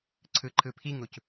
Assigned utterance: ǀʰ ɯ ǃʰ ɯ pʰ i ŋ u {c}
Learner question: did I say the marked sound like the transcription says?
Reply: yes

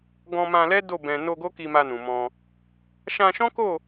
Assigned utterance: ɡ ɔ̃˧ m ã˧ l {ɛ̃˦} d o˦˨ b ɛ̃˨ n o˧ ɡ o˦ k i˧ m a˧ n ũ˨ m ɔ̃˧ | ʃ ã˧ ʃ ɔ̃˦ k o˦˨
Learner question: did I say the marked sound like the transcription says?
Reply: no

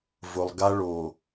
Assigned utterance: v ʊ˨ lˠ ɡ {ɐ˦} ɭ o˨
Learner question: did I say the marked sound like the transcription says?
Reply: no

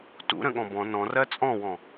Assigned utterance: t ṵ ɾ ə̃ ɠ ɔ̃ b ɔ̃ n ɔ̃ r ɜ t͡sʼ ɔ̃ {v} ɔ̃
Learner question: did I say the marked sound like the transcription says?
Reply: no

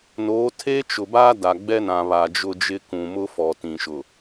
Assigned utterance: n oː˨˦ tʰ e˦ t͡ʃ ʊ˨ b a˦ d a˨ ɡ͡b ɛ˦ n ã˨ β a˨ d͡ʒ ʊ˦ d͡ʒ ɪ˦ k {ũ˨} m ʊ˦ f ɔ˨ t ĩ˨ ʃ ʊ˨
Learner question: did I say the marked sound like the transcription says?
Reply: yes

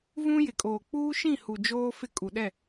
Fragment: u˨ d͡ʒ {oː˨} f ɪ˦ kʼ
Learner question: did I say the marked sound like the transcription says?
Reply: no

